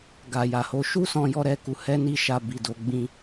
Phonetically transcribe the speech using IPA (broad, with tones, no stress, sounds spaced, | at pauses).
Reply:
ɡ a˨ j a˨ h o˧ ʃ u˦ s ɔ̃˧ j ɔ˧ ɾ ɛ˧ k u˧ h ɛ˦ n i˦˨ ʃ a˧ b i˨ d o˨˦ ɡ͡b ĩ˦